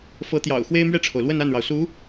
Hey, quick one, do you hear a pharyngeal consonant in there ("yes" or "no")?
no